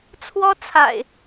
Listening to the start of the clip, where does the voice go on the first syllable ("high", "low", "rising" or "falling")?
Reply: high